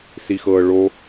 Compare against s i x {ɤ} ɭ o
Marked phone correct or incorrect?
correct